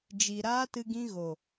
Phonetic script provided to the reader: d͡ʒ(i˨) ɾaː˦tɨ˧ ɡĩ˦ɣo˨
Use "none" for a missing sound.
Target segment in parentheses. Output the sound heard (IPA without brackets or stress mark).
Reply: i˨